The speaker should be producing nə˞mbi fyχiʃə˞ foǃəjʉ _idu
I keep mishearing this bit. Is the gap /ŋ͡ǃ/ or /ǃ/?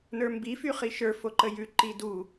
ǃ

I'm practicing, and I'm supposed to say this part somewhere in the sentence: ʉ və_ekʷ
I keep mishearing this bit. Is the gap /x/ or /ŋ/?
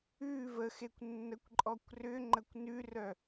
x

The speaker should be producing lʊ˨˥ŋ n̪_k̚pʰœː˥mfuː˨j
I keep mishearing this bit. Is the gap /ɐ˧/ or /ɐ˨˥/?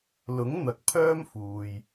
ɐ˨˥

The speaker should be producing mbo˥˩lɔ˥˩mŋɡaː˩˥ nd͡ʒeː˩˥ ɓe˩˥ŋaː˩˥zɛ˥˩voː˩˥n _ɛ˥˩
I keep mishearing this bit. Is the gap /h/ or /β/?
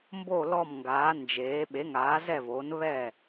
β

